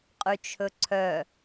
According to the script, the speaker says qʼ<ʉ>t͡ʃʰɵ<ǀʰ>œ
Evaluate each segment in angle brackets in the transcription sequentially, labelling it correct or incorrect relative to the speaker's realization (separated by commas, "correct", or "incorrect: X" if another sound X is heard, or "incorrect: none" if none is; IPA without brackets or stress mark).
correct, correct